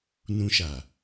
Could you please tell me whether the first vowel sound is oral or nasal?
nasal